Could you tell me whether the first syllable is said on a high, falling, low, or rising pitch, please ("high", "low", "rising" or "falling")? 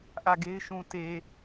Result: falling